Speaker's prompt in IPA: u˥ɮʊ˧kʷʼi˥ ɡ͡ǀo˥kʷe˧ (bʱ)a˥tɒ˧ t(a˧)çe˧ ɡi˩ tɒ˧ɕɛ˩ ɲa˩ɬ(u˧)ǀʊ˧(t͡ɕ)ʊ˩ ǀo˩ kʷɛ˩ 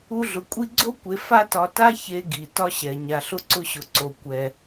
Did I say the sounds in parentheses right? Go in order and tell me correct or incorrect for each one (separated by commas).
incorrect, incorrect, incorrect, incorrect